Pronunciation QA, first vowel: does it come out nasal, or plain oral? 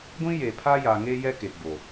nasal